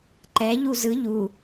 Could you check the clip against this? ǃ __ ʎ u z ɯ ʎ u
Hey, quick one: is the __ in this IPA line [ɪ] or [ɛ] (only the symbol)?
ɛ